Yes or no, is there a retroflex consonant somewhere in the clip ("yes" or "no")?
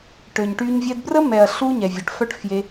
yes